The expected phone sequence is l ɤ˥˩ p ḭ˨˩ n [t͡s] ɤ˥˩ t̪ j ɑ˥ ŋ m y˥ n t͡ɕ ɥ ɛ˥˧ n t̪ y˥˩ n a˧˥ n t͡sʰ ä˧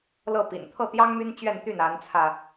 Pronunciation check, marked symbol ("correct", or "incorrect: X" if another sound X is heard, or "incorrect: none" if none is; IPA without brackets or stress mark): incorrect: t̪ʰ